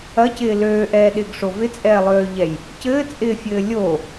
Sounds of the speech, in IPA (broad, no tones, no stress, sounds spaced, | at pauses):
ɐ c ɪː l øː ʔ ɛː ɗ ɪː ɡ ʂ o v ɪ t͡sʼ ɛː lˠ øː ʎ ɛ j | c ɘː t͡sʼ ɪː fʲ ɘː lʲ o